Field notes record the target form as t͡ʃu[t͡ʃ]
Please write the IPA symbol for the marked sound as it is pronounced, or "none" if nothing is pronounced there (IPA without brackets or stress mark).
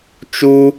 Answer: none